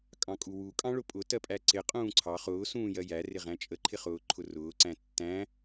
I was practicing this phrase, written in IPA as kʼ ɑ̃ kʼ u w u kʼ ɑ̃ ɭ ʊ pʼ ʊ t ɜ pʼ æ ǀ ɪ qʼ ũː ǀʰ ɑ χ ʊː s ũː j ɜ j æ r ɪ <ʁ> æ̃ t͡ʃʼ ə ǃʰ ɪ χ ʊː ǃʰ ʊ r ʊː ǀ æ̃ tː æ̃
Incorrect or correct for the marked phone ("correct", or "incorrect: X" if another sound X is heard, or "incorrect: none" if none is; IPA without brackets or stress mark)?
correct